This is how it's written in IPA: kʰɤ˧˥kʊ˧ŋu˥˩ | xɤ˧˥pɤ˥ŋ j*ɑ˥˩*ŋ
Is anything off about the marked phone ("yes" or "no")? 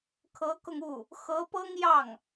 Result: no